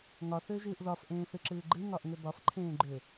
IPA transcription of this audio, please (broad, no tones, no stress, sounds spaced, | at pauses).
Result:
ŋ ɒ θ ʏː ʒ ɨː ʔ ð ɒ f ʔ ẽː θ ɨ ǁ ɨː ɡ͡ǃ ɨ ŋ ɒ ʔ ŋ ʏ b ɒ f ǃʰ ẽː ɡ͡ǃ ʏ